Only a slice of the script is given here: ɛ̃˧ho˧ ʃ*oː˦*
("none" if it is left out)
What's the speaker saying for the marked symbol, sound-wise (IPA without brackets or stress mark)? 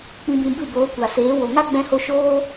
oː˦